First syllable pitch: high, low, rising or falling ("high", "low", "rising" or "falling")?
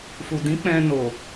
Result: low